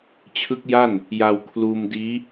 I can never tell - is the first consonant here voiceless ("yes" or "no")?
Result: yes